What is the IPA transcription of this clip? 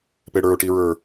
p e ɽ ə˞ ʊ̯ ʈ i ɹ ə˞

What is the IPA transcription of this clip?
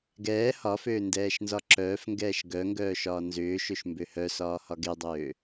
ɡ ɛː h ɒ f øː n d ɛː ʃ n z ɒ ǁ œː f ŋ ɡ ɛː ʃ ɡ œ ŋ ɡ œː ʃ ɒː n z ʏː ʃ ø ʃ m b ø h œ s ɒː h ɒ ɡ e dˤ øː

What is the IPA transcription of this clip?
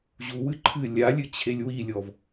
ʑ u w ɨ ǃʰ ɨ lʲ a lʲ ɨ t͡ɕʰ e lʲ w i lʲ ɔ v

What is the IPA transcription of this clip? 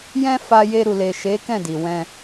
j ɛ̃˦ f a˧ j e˧ ɾ u˨ l e˨ ʃ e˨˦ k ɛ̃˦˨ d i˨ w ɛ̃˧

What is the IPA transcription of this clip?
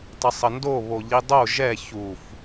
tˤ ə sˤ ə n d o β o ʎ i dˤ o ʒ ɛ ç u f

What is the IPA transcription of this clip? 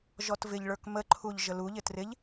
ʒ ɔ t v ɪ ʎ ɭ ə˞ k m ə ǃʰ u ʎ ʒ ə l u ʎ ɪ t r ɪ ʎ

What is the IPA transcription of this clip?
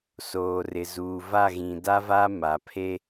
s oː˨ r ɪ˨ z uː˨ v a˦˨ ɣ ĩ˨ d a˦ v a˦ m a˨ pʰ e˦

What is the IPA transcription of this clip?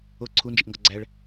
o ǀʰ u n d͡ʒ i ʔ ŋ ɡ ɒ ɡ͡ǀ æ ɭ

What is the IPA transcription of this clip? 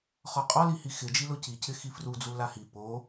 χ ɔ qʼ ɔ l i h i x ɪ d͡ʒ i l ʊ c i c ɪ x i f r u d͡z u l a h i p o

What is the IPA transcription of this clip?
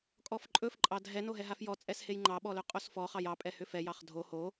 kʼ ɔ f ǃʼ ɵ f ǃʼ ɑ dʱ ɛ n o ɦ ɛ ɦ a f j ɔ t͡sʼ ɛ s h e j ŋ͡ǃ ɑ ɓ ɔ l ɵ qʼ o s f ɔ χ ɑ j ɑ pʼ ɛ h ʏ f ɛ j ɑ χ dʱ o h o

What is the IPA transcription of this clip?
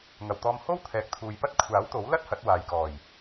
ŋ ɐ˨˩ w t̪ ɔː˧ m h o˥ w t̪ʰ ɛː˨ k̚ t̪ʰ uː˨ j p ɐ˥ t̚ kʷʰ aː˨˥ w t̪ o˨˥ w l ɐ˥ t̚ h ɐ˨˥ t̚ w aː˨ j k ɔː˨˩ j

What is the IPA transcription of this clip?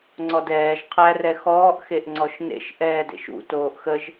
ŋ͡ǀ ɔ d ɛː ʒ qʰ æ r ɛ x ɔː ʔ x e ʔ ŋ͡ǀ ɔ ʃ n ḛ ʃ ʔ ɛː d ḛ ʃ ṵ t oː ʔ x ə ʒ

